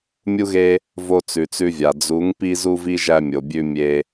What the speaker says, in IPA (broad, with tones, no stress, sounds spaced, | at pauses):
mʲ u˦ ɣ e˦ | v o˧ t͡s ʉ˨ t͡s ʉ˧ vʲ a˨ d͡z u˨˦ ŋ p i˧ z u˧ v i˧ ʒ æ˧ mʲ o˨ bʲ ʉ˧ mʲ e˧